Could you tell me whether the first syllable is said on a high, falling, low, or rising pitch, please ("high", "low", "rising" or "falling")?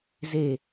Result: low